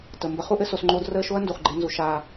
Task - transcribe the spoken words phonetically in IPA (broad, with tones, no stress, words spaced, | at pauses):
tə˨ mbə˧χu˦ʔɘ˦ so˧sŋ͡ǃoː˦d rəː˦˨ʃo˦ɐ̯ndu˨χɡ͡ǃe˧ nzu˧ ʃaː˦